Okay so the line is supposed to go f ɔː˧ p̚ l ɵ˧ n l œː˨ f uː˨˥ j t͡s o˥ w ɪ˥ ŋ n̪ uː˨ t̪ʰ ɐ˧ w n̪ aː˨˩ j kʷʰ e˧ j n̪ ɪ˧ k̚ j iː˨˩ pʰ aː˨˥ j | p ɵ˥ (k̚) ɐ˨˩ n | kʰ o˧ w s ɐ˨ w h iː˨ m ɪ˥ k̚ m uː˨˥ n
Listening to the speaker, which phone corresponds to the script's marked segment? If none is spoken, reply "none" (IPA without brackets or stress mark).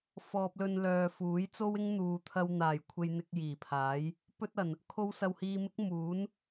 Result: t̚